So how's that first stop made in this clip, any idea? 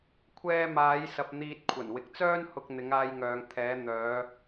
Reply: aspirated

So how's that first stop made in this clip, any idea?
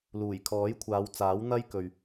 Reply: aspirated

